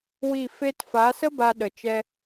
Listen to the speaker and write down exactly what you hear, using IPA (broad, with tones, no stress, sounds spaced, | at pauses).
w i˦˨ f e˧ t f a˨˦ s ə˦ b a˧ ɗ ə˨ t͡ʃ ɛ˧